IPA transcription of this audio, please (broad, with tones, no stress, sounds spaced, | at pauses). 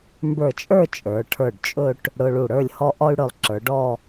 m b ə˞˧˩ t͡ʃʼ ə˞˥˧ t͡ʃʼ ə˞˩˧ ʈʰ ə˞˧˩ ɖ t͡ʃʼ ɵ˥˧ ʈ | ɽ ʊ˧ ɭ u˧˩ ɽ ə˞˥˧ lʲ h ɔ˥ ʔ ɔ˥ y̯ ɽ ɵ˧˩ lˠ ǁ ə˞˩˧ ɖ ɔ˥˧